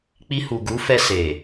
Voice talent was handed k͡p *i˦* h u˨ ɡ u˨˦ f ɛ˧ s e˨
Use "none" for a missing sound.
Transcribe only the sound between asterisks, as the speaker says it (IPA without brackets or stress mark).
i˧